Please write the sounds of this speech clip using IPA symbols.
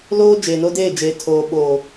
l oː˦ d͡ʒ eː˨ n o˦ d eː˦˨ d͡ʒ eː˨ tʰ oː˨ ɓ oː˨

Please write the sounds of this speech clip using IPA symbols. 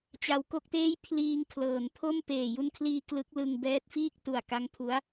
t͡ɕ a˧ w k o˥˩ k̚ t eː˥˩ j pʰ l iː˧ ŋ kʰ l ɤː˩˦ n pʰ o˥˩ m p eː˨˩ j u˧ n kʰ l iː˧ k l ɯ˦˥ k̚ l ɯ˧ ŋ b ɛː˦˥ t̚ f iː˥˩ k̚ t u˨˩ a̯ k a˦˥ ŋ pʰ u˦˥ a̯

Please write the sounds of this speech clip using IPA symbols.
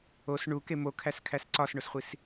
o s ɳ u k e m o kʰ æ s kʰ æ s ǀ ɒ s ɳ o s χʷ i s

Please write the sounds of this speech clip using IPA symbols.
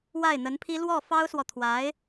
w a˥˩ ɪ̯ n̪ ə˧˥ n pʰ i˥ l w ɔ˥˩ f ɑ˥ ʊ̯ s w ɔ˨ t̪ʰ w a˧˥ ɪ̯

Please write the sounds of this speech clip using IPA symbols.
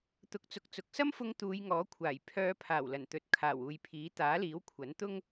t̪ ʊ˨˥ k̚ t͡s ʊ˨ k̚ t͡s ʊ˨ k̚ s ɐ˥ m f ʊ˧ ŋ t̪ uː˨˧ j ŋ ɔː˨˥ kʷʰ aː˨˩ j pʰ œː˨˧ pʰ aː˨˩ w l ɐ˨˩ n t̪ ɵ˨ t̚ kʰ aː˨˩ w uː˨ j pʰ iː˨˥ t̪ aː˨˥ l iː˨˥ w kʷʰ ɐ˨˥ n t̪ ʊ˥ ŋ

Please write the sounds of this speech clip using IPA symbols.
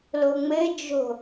l o ŋ͡m ɘ d͡ʒ o̤

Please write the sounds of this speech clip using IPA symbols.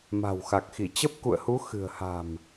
m a̤˨˩ w x a˨˩ k̚ x i˧˩ t͡ɕ ə˦˥ p̚ k ṵ˧˨ ə̯ h u˨˦ x ɨ̤˨˩ ə̯ h a̤˨˩ m

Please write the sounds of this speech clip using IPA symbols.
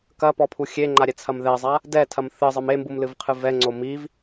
k ɐ p ɔ pʰ u xʲ e ŋ͡ǃ a ɾʲ ɛ t͡sʰ ɐ m ð ɛ zˤ a | d ɛ tʰ ɐ m θ ɨ zˤ ɘ m e m b u m l ɨ v qʰ ɨ v ɛ ŋ͡ǀ o m i v

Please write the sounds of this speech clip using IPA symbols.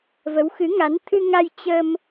v ə˨˦ w x ɨ˨˦ ŋ a˨˦ n t̪ʰ ɨ˧ ŋ a˧ j t͡ɕ ə˧ m

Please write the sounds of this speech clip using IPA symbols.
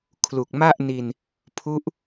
kʰ l u˨˩ k̚ m a˥˩ ʔ n i˧ n | pʰ u˦˥ ʔ

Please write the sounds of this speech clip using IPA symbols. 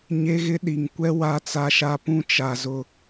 ɲ e˦ ɣ ɪ˦ ɗ i˨ ŋ kʷ ɛ˦ w a˦ t͡s a˦ ʃ a˦ p ũ˦ t͡ʃ a˨ z ʊ˦

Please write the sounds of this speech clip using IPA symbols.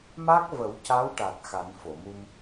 m a˦˥ k̚ v ə˨˩˦ w c a˧˥ w ʈ a˨˩ t̚ x a˨˩˦ n f o˨˩˨ m u˧ m

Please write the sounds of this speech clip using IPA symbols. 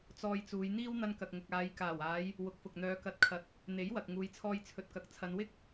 t͡s ɔː˧ j t͡s uː˨˧ j n̪ iː˥ w n̪ ɐ˧ n k ɐ˨ k̚ ŋ ʊ˨ k̚ aː˨˧ j k aː˨˩ w aː˨˧ j | w ʊ˨˥ k̚ f ʊ˨ k̚ n̪ œː˨˧ k ɐ˨˥ t̚ kʰ ɐ˨ t̚ | n̪ e˨˥ j w ɐ˨ k̚ ŋ uː˨˧ j t͡sʰ ɔː˧ j t͡sʰ ɵ˨ t̚ k ɐ˨ k̚ t͡sʰ ɐ˨˧ n w ɪ˥ k̚

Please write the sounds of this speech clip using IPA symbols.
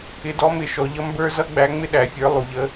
ɪ˨˥ d ɔ˨˥ m ɪ˩˧ ʃ ɔ˩˧ ʎ ʌ˥ m b ə˞˥ z ʌ˥ ɡ͡b æ˨˥ ŋ͡m ɪ˥ ɗ æ˩˧ fʲ ə˞˨˥ lˠ u˩˧ ʎ ə˨˥

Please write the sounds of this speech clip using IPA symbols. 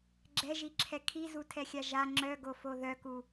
ɡ͡ǁ ɛ ʒ i ǁʰ ɛ kʰ i z u tʰ ɛ xʲ a ʒ a ŋ͡ǁ œ ɡ o f o ð œ k u

